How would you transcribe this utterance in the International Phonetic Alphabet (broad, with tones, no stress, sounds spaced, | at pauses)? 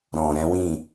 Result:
ɾ ɔ̃˨ ɾ ɛ̃˨˦ w ĩ˦˨